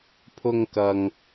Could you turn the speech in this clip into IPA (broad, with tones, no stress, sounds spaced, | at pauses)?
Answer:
pʰ ʊ˧ ŋ k ɐ˨ ŋ